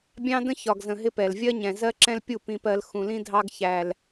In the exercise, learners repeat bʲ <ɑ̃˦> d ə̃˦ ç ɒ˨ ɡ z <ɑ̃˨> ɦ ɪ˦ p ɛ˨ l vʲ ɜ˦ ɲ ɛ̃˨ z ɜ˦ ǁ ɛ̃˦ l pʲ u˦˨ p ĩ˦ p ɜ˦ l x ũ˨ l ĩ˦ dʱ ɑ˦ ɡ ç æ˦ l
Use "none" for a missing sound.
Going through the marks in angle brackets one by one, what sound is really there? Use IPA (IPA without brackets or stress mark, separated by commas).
ɑ̃˦, ə̃˨